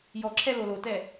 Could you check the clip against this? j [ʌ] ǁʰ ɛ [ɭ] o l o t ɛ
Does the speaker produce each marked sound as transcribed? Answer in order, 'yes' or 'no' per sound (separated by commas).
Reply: no, no